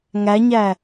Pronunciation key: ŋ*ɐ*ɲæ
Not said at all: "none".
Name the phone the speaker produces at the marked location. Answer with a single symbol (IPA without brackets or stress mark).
æ